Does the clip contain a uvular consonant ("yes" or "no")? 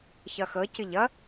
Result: no